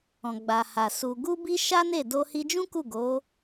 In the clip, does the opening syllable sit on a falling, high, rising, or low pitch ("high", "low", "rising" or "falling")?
low